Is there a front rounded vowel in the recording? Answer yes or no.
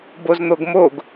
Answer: no